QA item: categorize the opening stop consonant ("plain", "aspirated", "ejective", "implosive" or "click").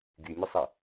plain